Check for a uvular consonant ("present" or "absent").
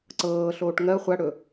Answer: present